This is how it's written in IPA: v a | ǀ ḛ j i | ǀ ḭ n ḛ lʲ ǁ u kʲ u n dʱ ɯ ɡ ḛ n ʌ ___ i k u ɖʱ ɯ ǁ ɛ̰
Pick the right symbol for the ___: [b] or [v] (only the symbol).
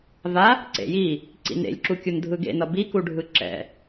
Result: b